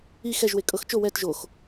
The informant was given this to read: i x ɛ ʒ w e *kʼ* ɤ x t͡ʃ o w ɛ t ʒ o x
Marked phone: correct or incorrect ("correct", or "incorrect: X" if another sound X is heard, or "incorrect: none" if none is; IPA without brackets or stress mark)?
correct